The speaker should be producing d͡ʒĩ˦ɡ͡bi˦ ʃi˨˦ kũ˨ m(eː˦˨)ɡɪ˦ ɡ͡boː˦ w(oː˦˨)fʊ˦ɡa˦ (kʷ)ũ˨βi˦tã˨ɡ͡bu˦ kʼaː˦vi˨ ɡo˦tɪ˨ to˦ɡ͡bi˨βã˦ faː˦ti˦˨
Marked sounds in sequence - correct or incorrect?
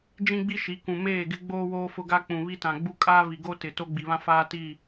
correct, incorrect, incorrect

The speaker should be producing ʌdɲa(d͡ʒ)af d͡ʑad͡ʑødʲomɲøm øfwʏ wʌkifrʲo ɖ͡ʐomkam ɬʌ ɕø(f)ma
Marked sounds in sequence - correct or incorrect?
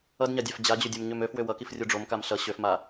incorrect, correct

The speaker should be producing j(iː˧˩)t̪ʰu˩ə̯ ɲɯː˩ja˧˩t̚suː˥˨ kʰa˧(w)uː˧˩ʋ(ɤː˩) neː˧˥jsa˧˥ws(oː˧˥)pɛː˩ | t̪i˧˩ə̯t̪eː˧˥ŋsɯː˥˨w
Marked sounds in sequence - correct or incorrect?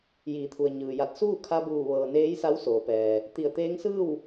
incorrect, incorrect, correct, incorrect

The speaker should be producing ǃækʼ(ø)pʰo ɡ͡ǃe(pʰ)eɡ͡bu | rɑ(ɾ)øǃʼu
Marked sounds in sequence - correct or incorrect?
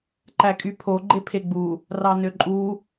incorrect, correct, incorrect

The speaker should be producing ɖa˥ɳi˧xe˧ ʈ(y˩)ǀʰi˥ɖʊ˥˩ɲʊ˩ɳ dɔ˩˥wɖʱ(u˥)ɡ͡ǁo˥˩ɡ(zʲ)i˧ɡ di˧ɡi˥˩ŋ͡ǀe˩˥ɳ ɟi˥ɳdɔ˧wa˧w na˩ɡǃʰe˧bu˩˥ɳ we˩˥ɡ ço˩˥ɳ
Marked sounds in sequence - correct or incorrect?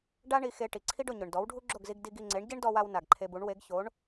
incorrect, correct, incorrect

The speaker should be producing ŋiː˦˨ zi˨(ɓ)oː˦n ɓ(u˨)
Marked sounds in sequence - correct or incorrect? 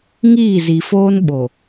incorrect, incorrect

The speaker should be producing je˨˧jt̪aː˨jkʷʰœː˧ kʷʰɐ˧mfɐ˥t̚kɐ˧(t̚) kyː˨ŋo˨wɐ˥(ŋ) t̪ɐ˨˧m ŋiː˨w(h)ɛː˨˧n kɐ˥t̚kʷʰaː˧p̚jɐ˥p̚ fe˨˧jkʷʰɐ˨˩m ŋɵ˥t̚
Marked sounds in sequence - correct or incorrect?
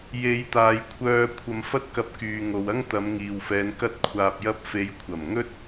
incorrect, correct, incorrect

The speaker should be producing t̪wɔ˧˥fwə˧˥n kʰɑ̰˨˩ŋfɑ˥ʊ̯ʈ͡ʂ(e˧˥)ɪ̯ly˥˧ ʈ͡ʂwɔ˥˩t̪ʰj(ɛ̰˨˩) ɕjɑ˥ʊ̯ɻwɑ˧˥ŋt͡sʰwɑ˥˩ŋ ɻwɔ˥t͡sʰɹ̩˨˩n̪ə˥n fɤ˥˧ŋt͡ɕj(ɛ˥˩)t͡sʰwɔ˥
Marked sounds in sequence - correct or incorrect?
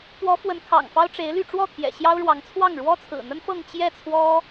correct, correct, correct

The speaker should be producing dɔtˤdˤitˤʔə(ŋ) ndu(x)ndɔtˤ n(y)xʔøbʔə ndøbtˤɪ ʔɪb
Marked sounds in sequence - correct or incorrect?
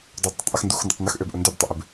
incorrect, correct, incorrect

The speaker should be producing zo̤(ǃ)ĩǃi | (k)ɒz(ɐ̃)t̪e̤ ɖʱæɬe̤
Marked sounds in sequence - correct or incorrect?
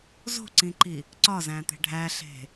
incorrect, incorrect, incorrect

